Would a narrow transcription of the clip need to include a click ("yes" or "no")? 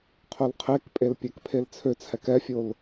no